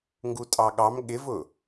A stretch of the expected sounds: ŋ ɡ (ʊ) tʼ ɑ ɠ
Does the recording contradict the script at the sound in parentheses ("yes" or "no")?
yes